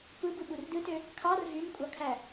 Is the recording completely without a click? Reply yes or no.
yes